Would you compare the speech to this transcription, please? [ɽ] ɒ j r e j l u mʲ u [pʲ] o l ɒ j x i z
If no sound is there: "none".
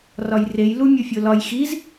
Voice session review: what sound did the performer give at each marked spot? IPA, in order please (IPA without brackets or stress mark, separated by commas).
r, fʲ